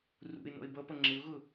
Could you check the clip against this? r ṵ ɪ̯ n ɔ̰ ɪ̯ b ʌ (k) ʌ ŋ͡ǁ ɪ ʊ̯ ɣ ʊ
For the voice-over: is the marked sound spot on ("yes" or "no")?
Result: no